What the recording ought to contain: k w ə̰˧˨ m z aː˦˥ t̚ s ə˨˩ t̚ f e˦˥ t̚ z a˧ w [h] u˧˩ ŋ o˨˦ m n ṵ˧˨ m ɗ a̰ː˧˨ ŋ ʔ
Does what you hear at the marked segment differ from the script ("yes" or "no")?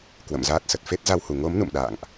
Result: no